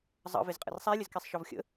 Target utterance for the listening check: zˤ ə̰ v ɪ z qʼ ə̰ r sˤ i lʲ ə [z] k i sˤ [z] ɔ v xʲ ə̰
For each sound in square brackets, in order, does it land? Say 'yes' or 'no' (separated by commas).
yes, no